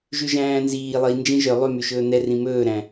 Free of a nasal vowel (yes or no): no